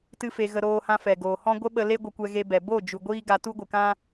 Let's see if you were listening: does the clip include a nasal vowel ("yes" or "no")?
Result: yes